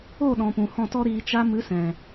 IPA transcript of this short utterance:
o˦˨ɗɔ̃˨pũ˨ hɔ̃˦˨tɔ˦ɾiː˧ t͡ʃa˧mɨ˨˦sɛ̃˨

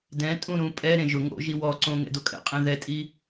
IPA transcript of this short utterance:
dɛ̃tʼũ ɾũpʼɛɾẽ ʒʊ ŋo̰ʒi wɔǀõ ŋɛ̰dokʼɛ̰qʼẽ ðɛtʼi

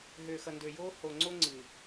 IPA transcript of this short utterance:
ɦøː˨xʌ˨ ndø˨joː˦ho˨ŋ͡ǀo˦ ŋ͡ǀɨː˨

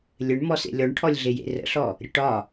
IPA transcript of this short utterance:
lʲɘɳmɔsḛ lʲɔɳʈʰɔlʲ ɮejḛrə̰ɬɔ | ɾʲəʈɒ

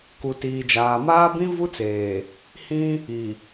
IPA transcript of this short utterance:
ku˨tiː˨d͡ʒaː˨ maː˦bĩ˦vu˦t͡seː˨ | hĩ˦ | i˨

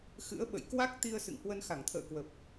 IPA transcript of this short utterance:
xɨ̰˧˥ə̯ɓə̰˧˨j kwa˦˥k̚t̪i˧ə̯ sɨ̰˧˨ŋhwə˧n xa˧˩ŋt̪ʰə̰ː˧˨kwə˨˩p̚

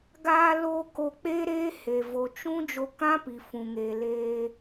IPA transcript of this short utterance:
ɡaː˧lo˧ ko˧k͡peː˦ɾeː˦he˨ vo˨t͡ʃũ˦ d͡ʒo˧kã˦ pi˨fũ˨ŋeː˨ leː˧

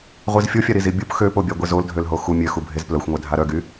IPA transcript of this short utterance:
ʁʷizfʲofʲa ɾizibʲup xøpobʲa ɡʷezoldʱølɦo xu mʲøxubʱez plœxʷŋʷɛ dʱaɾœɡy

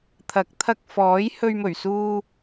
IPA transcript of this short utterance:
t̪ʰɐ˨˥k̚t̪ʰɐ˧k̚ fɔː˨˥jhɵ˧ɥmɵ˨˩ɥ suː˧

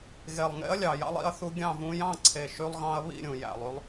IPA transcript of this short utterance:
ɣe˨˩lˠŋḛ˧˥ɐ̯lʲɑ˨˩ jɑ̰˧lˠḭ˥˩ɐ̯θu˧ ɡʲɑ̃˥˩vũ˧ jɑ̃˥˩ǀʰe˨˩ ʃy˧lˠɣɑ̃˧ɐ̯ βḭ˥˩ɾʲũ˨˩jæ̰˨˩lˠy˧lˠ

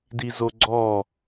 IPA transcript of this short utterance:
dizoɡ͡ǀɔ

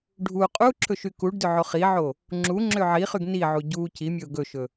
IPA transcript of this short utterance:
ɖʱu qʼu ǁʰɵʃykuɖdø ʕoχiʕo | ŋ͡ǁu ŋ͡ǁøʕiχyɡ niʕu ɟu cimʲɵʊ̯ ɡɵʃɵ

